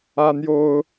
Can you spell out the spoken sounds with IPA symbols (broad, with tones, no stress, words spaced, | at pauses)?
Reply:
ä˦n̪jo˦ʊ̯